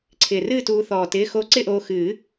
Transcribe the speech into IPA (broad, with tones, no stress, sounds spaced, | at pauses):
ǀʰ ɪː˨˩ r ɨː˥˧ t uː˧ θ ɔː˨˩ t ɪː˧˥˧ x o˥˧ ǀ ɪ˥˧ ʔ oː˧ x ɨː˨˩˦